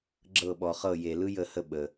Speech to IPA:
ɡ͡ǁ ɤ˥˩ ɓ ɔ˨ χ ɤ˥˩ j e˨ l ɯ˥ j ə˥˧ h ə˥˧ ɓ ə˨

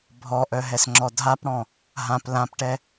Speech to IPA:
bʱ ɔ ʔ œ ɦ ɛ s ŋ͡ǁ ɔ dʱ a p ɽ ɔ̃ | ɦ ã p l ã p ʈ ɛ

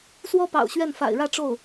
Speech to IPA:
s w ɔ˥ p ɑ̰˨˩ ʊ̯ ɕ ɥ ɛ˥˩ n f a̰˨˩ ɪ̯ ɻ ä˥˧ ʈ͡ʂ o˥˩ ʊ̯

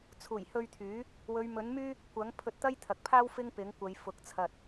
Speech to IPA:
t͡sʰ uː˨˩ j h ɵ˧ ɥ t̪ʰ yː˨˥ | w ɵ˨˧ ɥ m ɵ˨˥ n m yː˥ | kʷ ɐ˨˥ ŋ pʰ ɵ˧ t̚ t̪ ɐ˥ j t̪ʰ ɐ˨ k̚ pʰ aː˥ w f ɪ˥ ŋ p ɪ˨˥ ŋ kʷ ɐ˨˧ j f ʊ˨˥ k̚ t͡sʰ ɐ˧ t̚

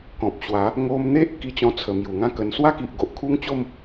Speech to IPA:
k ɔ̃˨ p̚ ɕ w a˨˦ | ŋ o˧ m n̪ e˦ ʔ k i˧ t͡ɕ ɔ̃˧ t͡sʰ ə˨˩ m j u˨˩ ŋ ã˦ k ə˧ n s w a˦ k i˨ ʔ ɡ o˨ ʔ kʰ u˦ ŋ t͡ɕ o˥˧ m

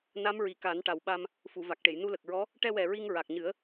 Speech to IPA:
n a˧˥ m ɹ i˨˩ k a˨˩˦ n ʈ a˨˩ w ɓ a˧ m | f u˨˩˨ v a˨˩ k̚ ʈ e˨˩˨ j n u˧ l ə˨˩ k̚ ɹ ɔ˧˥ | ʈ ɛ˧ w ɛ˨˩ ɹ i˧ ŋ ɹ a˨˩ k̚ ɲ ɨ˨˩˦ ə̯

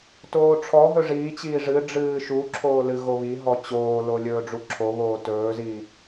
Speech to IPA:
t oː ʈ͡ʂʰ ɔ ɦ ɵ ʐ iː t͡ɕ iː ʐ ɨ ɖ͡ʐ ɨː ʃ u ǁʰ oː l ɨ ɣ o β i ɦ ɔ t͡ɕ oː l o lʲ ɵː ɖ͡ʐ u ǁʰ o β oː t ɵː z i

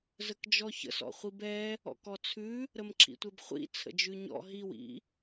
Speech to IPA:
z ə k d͡ʒ ɔ ç ə̰ s ɔ̰ χʷ i b ɛ | ɔ̰ k ɔ t͡sʰ ʉ | ɾ ə m ǁʰ ḭ tʷ ɛ b χʷ ḭ t͡sʰ ə̰ d͡ʒ ʉ ɲ ɔ̰ ɦ i w ḭ

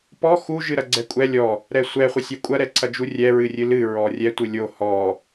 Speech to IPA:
p ɔ x u ʒ ɨ ɾ ɐ ɡ͡ǀ ɛ kʷʼ ɛ lʲ ɔ | ɾ ɛ sʷ ɛ χʷ ɨ sʲ ɛ kʷʼ ɐ ɾ ɛ ǀʰ ɐ d͡ʒ u rʲ ɛ ɹ ɨ rʲ ɨ l ɨ ɹ ɔ rʲ ɛ tʷ ɨ lʲ o h ɔ

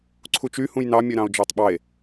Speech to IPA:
ǀʰ u t͡ʃ y h ũ j n ɑ mʲ ø ɾ ɑ̃ o̯ d͡ʒ ɑ tˤ ɓ ɑ e̯

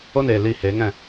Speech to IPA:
o˦ n eː˨ l iː˧ h eː˨˦ ŋ ɛ̃˦˨

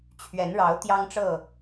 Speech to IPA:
t͡ɕʰ ɥ ɛ˨˦ n ɻ ɑ˨˦ ʊ̯ t̪ j ɑ˦ ŋ ʈ͡ʂ ɤ˥˨

